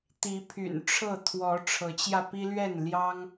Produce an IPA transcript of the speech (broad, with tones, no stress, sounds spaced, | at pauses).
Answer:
t̪ i˨˦ pʰ y̰˨˩ n ʈ͡ʂʰ ɤ˥˨ t̪ʰ w ɔ˨˦ ʈ͡ʂʰ ɤ˨˦ t͡ɕ j ä˧ p i˦ l ɥ ɛ˥˨ n l j ɑ˦ ŋ